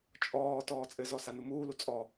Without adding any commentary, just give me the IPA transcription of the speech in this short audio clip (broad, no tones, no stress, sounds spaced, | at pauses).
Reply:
t͡ʃʼ ɔː t ɔː t͡sʼ ɘ z ɔ s a n u m uː l u t͡sʼ ɔ